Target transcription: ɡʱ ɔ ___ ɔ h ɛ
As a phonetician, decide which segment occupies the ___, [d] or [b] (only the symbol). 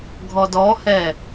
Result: d